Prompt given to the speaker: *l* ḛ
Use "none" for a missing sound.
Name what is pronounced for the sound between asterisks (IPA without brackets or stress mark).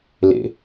l